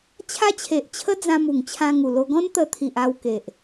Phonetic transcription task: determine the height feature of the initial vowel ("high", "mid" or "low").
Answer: low